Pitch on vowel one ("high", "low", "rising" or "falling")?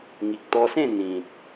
low